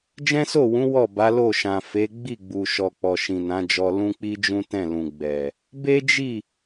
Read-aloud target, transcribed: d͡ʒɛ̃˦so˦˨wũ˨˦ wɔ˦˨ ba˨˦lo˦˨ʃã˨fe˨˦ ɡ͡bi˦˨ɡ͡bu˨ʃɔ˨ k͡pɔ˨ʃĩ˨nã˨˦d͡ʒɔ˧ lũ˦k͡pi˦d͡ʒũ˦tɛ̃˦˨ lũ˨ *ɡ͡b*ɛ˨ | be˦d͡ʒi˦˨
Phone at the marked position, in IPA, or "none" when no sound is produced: ɡ͡b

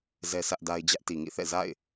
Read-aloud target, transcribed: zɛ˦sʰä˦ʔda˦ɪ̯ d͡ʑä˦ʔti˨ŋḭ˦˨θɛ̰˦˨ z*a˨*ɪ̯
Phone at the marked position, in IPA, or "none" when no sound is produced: a̰˦˨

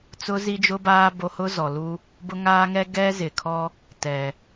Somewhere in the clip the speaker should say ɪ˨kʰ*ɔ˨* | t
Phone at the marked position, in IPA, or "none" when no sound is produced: ɔ˦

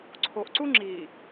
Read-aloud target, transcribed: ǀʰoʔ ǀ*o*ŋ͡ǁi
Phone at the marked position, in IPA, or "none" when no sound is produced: u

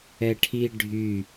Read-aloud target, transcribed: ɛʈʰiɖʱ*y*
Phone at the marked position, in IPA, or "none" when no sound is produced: y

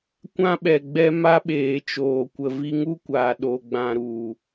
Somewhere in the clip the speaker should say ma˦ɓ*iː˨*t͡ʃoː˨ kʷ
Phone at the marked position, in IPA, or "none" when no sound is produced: eː˨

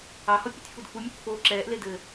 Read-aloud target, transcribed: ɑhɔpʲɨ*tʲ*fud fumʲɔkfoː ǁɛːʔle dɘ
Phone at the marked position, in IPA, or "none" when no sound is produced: tʲ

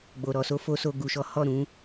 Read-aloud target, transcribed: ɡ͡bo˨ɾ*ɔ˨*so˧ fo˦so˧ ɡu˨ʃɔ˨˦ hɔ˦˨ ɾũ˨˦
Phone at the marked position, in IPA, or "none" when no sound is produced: ɔ˨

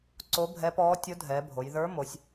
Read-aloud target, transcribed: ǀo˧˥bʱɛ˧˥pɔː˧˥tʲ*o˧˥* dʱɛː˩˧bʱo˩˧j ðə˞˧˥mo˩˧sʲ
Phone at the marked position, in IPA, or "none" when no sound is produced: o˧˥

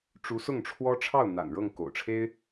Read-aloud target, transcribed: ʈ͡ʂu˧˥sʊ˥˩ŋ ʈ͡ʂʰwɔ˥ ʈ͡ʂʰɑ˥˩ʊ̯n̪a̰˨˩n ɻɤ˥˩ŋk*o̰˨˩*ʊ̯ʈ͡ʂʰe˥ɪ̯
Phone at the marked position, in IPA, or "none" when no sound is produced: o̰˨˩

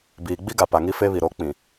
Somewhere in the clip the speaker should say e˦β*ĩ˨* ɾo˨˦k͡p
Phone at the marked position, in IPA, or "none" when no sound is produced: i˨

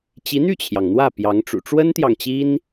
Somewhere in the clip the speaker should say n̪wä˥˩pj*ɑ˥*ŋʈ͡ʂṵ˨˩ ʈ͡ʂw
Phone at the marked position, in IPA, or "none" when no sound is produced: ɑ˧˥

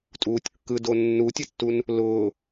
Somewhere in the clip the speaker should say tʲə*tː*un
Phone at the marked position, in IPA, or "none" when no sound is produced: tː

